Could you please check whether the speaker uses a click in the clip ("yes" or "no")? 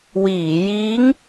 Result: no